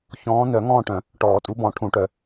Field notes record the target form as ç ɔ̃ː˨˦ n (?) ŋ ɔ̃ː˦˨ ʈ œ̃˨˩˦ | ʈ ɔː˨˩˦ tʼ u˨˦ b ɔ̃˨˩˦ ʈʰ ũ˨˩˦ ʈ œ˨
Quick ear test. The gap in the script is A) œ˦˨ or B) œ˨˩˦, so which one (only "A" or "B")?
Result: B